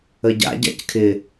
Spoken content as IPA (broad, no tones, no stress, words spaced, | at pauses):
əɟa̰ ɟa̰ckʰɪ